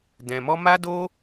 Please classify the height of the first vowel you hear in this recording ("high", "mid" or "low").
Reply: mid